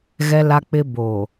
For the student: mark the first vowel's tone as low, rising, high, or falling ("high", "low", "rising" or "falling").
high